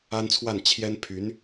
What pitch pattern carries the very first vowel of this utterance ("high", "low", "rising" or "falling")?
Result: high